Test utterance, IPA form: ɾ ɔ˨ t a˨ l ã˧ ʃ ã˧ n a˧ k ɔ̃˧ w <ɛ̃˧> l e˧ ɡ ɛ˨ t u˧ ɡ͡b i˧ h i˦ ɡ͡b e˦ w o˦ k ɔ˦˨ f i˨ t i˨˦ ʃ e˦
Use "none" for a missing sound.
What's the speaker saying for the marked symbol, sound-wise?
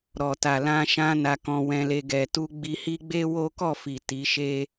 ɛ̃˧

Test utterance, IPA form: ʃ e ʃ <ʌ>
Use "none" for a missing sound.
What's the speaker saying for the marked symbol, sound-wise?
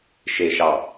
ɑ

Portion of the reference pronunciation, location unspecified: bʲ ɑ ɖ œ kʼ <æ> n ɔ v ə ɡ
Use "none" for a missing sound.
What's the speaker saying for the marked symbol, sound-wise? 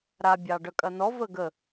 ɐ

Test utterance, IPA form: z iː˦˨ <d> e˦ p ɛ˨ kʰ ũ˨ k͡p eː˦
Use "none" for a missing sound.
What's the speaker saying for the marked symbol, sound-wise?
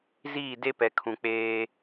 d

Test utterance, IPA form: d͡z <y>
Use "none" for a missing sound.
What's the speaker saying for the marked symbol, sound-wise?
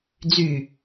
y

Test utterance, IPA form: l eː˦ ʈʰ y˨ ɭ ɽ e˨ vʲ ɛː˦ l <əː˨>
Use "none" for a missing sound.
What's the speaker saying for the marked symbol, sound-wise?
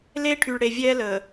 əː˨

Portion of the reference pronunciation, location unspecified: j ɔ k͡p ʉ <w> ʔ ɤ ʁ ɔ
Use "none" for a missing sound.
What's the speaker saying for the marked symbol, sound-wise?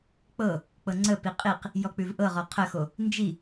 v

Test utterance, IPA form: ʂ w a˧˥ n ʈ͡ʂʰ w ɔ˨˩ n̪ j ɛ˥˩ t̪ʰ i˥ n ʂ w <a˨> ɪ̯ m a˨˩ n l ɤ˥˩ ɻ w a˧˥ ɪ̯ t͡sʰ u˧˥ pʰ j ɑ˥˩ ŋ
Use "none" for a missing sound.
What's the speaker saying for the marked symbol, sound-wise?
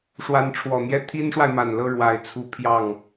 a˨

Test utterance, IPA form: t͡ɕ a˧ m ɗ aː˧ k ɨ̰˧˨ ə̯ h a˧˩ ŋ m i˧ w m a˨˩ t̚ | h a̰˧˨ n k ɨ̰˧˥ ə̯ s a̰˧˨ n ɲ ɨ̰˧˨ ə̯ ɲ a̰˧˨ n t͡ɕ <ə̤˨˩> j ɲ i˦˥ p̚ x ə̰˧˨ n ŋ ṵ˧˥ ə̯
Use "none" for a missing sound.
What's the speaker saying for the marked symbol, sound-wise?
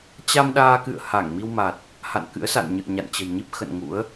ə̤˨˩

